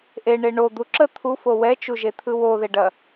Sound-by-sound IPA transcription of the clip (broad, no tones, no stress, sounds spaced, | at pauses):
ʔ e ɳ e ɳ o d̪ u ǁ ə t̪ʰ u f o w ɛ t͡ʃ u ʒ e t̪ʰ ɯ w o ð e ɖ ɐ